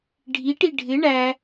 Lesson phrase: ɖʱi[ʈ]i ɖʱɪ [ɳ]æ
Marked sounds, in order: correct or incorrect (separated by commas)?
correct, correct